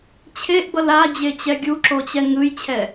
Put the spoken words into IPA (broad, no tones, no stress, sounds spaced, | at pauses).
t͡ɕʰ e ʔ b ʌ l a d͡ʑ e t͡ɕ ɛ ɡʲ u ǁ o t͡ɕ ɛ ŋ ɯ j t͡ɕʰ ɛ